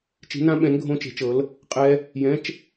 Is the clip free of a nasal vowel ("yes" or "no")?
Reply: no